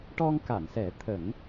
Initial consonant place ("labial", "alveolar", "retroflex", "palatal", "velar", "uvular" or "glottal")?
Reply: retroflex